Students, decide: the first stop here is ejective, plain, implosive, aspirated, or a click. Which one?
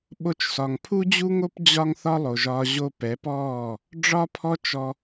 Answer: implosive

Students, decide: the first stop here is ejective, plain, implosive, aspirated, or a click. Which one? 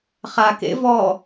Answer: plain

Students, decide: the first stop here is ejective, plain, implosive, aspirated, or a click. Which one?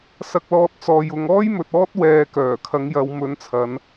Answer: plain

